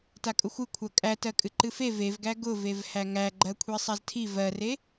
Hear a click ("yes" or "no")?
yes